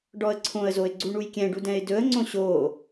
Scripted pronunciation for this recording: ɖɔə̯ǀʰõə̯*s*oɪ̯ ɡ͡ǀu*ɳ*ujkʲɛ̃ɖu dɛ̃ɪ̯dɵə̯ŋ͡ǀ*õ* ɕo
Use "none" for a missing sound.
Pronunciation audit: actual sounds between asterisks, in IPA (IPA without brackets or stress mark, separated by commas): z, ɳ, õ